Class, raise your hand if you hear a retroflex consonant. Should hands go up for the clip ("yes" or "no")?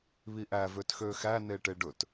yes